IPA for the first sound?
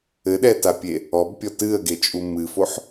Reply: ɘ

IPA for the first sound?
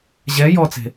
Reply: ʑ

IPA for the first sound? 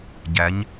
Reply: ɟ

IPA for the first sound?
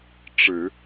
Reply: ʈ͡ʂ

